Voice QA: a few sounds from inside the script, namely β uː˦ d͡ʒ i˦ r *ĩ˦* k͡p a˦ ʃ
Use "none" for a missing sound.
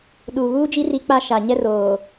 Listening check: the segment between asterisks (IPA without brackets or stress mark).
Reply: i˦